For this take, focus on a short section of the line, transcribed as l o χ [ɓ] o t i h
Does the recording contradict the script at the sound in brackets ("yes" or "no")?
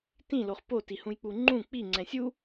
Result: yes